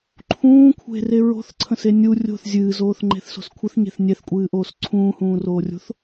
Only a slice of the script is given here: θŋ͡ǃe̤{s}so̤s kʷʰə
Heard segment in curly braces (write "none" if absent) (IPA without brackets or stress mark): θ